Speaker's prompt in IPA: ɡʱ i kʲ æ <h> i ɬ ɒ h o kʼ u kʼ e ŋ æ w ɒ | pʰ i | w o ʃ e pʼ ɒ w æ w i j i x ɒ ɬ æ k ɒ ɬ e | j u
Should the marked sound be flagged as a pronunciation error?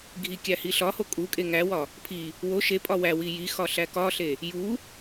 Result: no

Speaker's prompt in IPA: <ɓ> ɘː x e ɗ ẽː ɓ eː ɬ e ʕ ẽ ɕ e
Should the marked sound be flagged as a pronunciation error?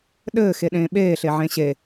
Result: yes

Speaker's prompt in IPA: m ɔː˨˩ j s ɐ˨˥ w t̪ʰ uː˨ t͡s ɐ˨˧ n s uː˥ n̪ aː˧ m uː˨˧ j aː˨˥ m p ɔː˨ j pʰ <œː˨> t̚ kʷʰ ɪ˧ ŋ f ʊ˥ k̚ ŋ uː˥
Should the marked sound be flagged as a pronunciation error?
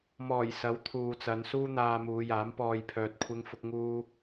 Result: no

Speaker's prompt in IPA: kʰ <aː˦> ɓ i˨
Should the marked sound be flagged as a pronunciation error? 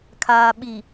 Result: yes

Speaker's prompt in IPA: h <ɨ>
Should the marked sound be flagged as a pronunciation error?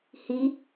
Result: yes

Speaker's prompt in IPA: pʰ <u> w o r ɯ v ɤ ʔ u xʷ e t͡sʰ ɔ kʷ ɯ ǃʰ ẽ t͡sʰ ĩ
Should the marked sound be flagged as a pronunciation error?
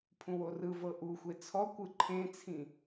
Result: yes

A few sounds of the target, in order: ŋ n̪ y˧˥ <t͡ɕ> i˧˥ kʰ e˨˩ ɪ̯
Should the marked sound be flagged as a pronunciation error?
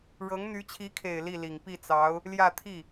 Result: yes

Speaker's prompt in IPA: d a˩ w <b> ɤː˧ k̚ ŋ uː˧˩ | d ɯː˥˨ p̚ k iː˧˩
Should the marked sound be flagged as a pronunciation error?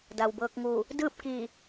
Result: no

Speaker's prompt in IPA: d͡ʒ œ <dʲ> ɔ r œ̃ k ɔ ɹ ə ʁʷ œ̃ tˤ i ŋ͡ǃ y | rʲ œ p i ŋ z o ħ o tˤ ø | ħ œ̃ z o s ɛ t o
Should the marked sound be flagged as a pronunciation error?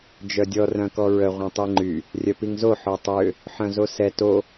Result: no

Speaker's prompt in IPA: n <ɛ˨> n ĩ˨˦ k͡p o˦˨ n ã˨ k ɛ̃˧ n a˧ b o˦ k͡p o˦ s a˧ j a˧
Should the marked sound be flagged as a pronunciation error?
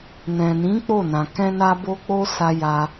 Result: yes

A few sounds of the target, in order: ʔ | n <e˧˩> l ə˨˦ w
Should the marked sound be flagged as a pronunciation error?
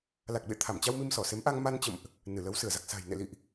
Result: yes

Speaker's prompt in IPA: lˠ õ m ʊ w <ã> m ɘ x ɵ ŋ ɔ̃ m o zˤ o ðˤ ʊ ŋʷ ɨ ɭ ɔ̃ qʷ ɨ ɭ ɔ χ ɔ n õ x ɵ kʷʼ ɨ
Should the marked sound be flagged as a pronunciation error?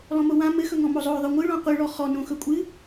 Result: no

